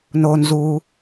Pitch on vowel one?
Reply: high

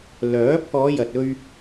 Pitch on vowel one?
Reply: rising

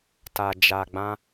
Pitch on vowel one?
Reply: low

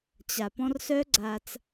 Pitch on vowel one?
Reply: low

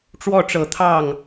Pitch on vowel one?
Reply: falling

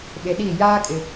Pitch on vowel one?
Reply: low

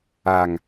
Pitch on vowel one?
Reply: low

